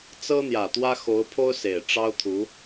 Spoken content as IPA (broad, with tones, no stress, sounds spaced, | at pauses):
t͡s ɤ˥ n̪ j ä˨˩ t̪ w ä˥ x o˧˥ ʊ̯ pʰ o˥ ʊ̯ s e˨˩ ɪ̯ ʈ͡ʂ ɑ˥ ʊ̯ t̪ʰ u˧˥